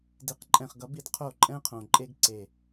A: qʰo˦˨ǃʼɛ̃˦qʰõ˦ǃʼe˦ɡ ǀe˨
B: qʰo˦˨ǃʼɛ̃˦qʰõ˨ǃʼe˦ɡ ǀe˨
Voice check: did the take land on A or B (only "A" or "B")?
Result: B